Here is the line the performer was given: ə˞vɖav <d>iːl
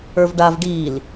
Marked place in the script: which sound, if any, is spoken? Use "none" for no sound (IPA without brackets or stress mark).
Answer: ɖ